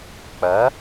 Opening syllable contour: rising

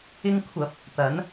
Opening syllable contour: high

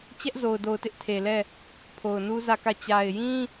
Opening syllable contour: high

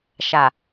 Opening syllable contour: low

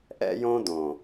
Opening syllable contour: high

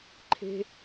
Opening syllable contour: high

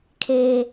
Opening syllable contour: high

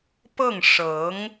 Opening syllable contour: falling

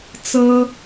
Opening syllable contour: high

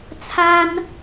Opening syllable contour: high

